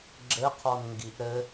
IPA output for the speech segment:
ɡ͡ǁ ɘ qʰ ɔ n ŋ ɡ i ʔ ɾ ɘ

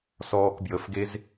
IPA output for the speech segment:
s ɔː k b j ə f ɡ e z

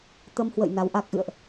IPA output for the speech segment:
t̪ ə˧ m h w ə̰˧˨ j n a˨˦ w ʔ a˦˥ k̚ ʔ ɨ̰˧˨ ə̯ ʔ

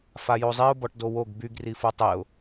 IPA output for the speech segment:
f a j o zˤ i ʊ̯ b ɔ ʈ d o w o ɡ b y ɡ r i f u tˤ e ʊ̯

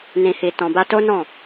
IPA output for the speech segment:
n ĩ˧ h i˧ t ɔ̃˧ b a˦ t o˦ n ɔ̃˦˨

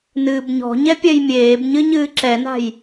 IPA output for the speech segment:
n ɨː b ɲ ɔ̤ ɲ ɛ pʲ ɛ j mʲ eː b ɲ ɨ ɲ ɨː ǁ ɛ n a̤ j

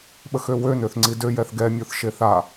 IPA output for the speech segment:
ɓ ə x ø w ø n ø θ ŋ͡ǀ i d ø j ɛ θ ɡ ɛ mʲ o θ ʃ e θ a

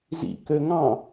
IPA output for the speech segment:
z ḭ k ø ŋ ɑ̃

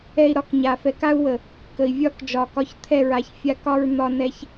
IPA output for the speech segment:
ɛ˨ i̯ ɾ ɒ˦ k ɲ a˨ f ɛ˨ k a˦ u̯ w ə˨ | k ə˨ i̯ vʲ ɒ˦ k d͡ʒ ɒ˨ k ɒ˦ ç t̪ʰ ɛ˦˨ ɹ a˨ ç fʲ a˦ k ɒ˦ ɹ n̪ ɒ˦ n ɛ˦ ç

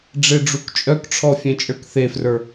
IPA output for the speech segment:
ɖ͡ʐ e ɖ͡ʐ u k t͡ʃʼ œ k ʈ͡ʂʰ ɔ fʲ ẽ t͡ʃʼ ə˞ k θ e f r ə˞

